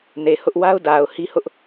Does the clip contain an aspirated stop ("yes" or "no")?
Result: no